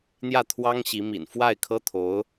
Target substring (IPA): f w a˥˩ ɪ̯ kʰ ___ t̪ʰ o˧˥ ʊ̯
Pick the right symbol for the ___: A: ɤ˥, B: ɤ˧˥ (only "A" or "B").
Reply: A